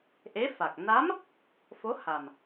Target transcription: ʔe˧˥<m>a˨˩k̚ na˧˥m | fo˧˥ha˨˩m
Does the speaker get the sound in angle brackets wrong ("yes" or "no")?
yes